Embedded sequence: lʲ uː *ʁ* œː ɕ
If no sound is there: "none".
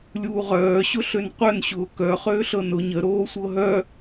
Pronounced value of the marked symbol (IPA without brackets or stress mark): ʁ